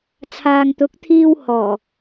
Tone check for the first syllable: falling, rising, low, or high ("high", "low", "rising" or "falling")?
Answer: low